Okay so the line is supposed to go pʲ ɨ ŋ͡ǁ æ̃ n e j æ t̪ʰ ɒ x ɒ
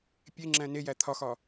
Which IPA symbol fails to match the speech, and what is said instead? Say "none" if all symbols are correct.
ɨ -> e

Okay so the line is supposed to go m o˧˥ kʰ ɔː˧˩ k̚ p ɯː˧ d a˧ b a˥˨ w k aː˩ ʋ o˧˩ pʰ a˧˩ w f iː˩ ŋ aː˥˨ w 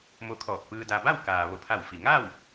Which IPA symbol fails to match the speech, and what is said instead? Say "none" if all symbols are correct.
iː˩ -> i˩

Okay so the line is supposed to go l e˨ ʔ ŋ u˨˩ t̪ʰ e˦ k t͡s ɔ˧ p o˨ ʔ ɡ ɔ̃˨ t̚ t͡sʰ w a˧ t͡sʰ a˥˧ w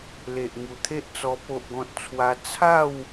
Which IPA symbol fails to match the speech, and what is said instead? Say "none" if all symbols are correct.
k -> ʔ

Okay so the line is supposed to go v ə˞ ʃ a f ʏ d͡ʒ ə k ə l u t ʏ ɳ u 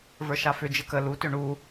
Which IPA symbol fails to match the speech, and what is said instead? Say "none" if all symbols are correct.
none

